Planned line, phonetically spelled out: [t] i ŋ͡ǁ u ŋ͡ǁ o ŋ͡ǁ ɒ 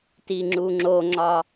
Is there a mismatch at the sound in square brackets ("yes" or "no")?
no